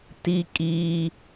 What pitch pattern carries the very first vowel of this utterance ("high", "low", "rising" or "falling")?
high